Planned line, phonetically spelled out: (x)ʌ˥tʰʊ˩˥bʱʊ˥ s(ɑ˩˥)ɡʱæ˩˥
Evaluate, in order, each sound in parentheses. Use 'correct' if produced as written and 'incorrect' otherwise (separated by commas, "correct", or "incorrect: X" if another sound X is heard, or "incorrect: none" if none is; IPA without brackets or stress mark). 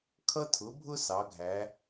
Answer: incorrect: kʰ, correct